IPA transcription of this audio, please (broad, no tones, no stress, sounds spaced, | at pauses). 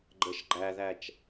ɡ͡ǃ ə ʃ ɡ͡ǃ æ ð æ t͡ʃ